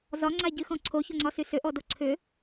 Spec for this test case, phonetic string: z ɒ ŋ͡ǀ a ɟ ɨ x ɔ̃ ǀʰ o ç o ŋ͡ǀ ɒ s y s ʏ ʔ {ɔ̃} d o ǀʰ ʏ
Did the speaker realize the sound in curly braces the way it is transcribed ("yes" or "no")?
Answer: no